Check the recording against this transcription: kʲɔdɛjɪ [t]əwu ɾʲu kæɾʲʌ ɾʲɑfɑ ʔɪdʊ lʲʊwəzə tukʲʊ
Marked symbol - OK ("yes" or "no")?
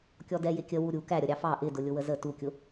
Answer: no